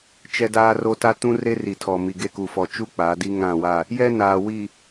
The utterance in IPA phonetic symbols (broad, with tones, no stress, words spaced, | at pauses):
t͡ʃɛ˦daː˦ro˦ ta˦tũ˦re˦ ri˨tʰɔ˨mi˨ɡe˦˨ ku˨fɔ˨t͡ʃu˦ k͡paː˨˦di˦ ŋã˦˨wa˦˨ | jɛ˦ naː˨ wi˨